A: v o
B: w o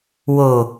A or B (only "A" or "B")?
B